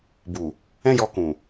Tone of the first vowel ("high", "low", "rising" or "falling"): low